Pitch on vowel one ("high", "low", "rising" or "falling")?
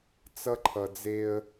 high